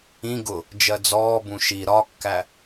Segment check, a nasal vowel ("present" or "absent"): present